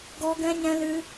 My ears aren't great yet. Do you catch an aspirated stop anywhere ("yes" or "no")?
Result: no